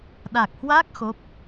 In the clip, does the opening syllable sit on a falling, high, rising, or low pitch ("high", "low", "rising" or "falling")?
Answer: low